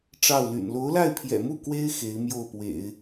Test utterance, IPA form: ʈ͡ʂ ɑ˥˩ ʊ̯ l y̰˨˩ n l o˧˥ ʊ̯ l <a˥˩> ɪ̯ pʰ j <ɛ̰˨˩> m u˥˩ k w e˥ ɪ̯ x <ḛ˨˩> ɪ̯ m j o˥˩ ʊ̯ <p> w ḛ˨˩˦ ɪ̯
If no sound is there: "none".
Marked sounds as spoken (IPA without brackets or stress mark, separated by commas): a˥˩, ɛ̰˨˩, e˧˥, p